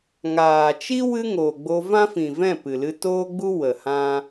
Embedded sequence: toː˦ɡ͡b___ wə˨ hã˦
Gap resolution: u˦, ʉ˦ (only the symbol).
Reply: u˦